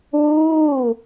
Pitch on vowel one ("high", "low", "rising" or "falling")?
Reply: falling